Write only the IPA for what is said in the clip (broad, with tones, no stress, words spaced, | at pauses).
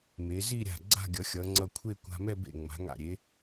me˩˧ zi˥˧ɾʲa̤˧˩ ɡ͡ǀa̤˥˧ɡʲʌ˩˧xʲʌ˩˧ ŋ͡ǀʌ˧˩kʷʰe˥˧ kʷa̤˧mɛ˥˧ bḛ˧˩ŋ͡ma̤˩˧ŋa̰˧˩ ɾʲe˩˧